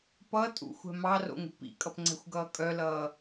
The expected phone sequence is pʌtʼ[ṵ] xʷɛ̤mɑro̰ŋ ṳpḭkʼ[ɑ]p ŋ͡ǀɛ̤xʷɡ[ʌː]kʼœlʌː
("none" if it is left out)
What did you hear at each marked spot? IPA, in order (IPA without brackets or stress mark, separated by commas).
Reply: ṵ, ʌ, ʌː